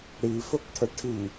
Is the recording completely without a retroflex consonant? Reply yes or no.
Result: no